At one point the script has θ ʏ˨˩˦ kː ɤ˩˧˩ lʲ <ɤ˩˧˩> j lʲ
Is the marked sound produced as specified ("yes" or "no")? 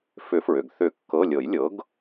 no